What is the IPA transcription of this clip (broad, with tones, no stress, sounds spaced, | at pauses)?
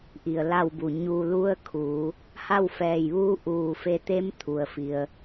ʔ i˧˩ ə̯ l a˥˨ w b u˧˩ ɲ u˧ l u˧˥ ə̯ kʰ uː˩˧ | h a˥˨ w f ɛː˧˩ j ʋ uː˧˥ ʔ uː˧˩ f e˧ t̪ e˧˥ m t̪ʰ u˩ ə̯ f i˩ ə̯